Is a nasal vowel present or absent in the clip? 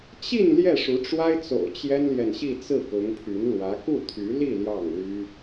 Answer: absent